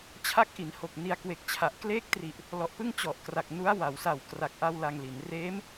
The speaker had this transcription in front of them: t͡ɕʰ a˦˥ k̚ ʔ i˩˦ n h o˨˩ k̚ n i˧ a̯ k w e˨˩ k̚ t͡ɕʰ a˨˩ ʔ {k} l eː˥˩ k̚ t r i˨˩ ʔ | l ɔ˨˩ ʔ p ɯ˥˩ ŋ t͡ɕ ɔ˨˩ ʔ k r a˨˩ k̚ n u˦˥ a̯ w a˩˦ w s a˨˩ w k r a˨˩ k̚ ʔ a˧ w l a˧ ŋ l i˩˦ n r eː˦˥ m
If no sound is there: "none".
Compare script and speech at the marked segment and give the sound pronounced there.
k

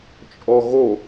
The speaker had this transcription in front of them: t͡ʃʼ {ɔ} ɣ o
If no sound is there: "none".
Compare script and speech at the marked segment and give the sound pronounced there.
ɔ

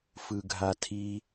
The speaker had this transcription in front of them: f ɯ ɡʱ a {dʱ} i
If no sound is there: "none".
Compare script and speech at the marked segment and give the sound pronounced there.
tʰ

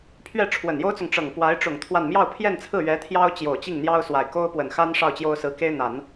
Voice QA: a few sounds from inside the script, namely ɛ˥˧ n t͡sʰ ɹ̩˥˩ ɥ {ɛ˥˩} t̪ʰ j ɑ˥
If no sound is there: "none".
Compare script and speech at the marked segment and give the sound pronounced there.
ɛ˧˥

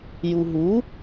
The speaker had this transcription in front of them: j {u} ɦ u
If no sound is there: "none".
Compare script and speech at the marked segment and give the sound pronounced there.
u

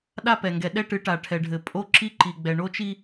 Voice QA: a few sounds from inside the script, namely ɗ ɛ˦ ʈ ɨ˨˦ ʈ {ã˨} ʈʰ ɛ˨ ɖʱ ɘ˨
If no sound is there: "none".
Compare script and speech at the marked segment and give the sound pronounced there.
a˨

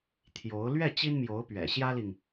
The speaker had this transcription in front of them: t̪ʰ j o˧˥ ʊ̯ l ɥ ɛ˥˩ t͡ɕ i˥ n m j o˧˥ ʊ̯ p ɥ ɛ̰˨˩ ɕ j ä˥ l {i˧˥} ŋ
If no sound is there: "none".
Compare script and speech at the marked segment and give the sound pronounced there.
i˨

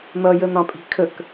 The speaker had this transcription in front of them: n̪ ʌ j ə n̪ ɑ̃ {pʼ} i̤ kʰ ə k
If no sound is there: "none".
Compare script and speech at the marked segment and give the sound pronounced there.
pʼ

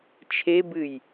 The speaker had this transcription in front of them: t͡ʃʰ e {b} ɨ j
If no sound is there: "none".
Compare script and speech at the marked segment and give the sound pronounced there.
b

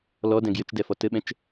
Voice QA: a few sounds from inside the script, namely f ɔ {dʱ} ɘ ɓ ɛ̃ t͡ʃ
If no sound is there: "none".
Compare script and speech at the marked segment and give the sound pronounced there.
t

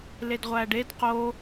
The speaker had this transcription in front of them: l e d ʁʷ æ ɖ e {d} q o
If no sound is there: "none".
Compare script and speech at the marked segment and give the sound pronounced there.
d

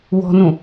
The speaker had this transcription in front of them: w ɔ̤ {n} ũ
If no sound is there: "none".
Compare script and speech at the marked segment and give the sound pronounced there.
n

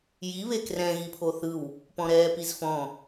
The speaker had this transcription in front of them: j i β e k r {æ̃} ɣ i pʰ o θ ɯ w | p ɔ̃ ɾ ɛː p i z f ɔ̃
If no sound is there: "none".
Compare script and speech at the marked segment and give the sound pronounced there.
ɛ̃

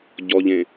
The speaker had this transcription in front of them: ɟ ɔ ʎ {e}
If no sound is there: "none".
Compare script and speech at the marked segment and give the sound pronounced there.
ẽ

